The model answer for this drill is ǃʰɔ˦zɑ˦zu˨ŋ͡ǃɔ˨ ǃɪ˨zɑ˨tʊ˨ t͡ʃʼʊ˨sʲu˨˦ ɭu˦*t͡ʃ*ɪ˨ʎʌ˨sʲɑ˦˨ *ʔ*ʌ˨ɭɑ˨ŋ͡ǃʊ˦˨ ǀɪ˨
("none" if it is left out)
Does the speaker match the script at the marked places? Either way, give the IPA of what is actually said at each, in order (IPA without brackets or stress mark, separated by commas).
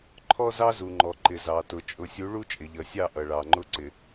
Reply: t͡ʃʼ, ʔ